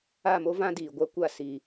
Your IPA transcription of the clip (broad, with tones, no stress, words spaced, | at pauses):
a˦˨mo˦vã˦ diː˨ɡʷa˦kʷa˦˨ si˨